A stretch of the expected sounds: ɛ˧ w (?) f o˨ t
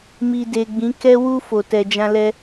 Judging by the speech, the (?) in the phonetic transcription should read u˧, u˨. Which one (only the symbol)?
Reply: u˧